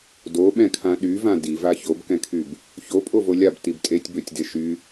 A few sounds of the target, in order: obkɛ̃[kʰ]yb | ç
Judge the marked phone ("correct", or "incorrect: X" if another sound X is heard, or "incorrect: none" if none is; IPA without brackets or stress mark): correct